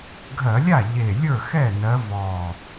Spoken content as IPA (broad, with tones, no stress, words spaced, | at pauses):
ɡʱɜ˧˩˧lʲa˥˩ ʎe˨˩ lʲə˞˥˩xɛ˥˩ nɜ˨˦ vɔ˨˩